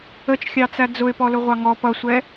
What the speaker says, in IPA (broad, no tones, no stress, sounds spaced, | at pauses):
ə t͡ʃ xʲ ɑ t͡s æ d͡z ʊ ɪ̯ p ɔ l ʊ ʁʷ ɑ ŋ ɔ p ʌ sʷ ɛ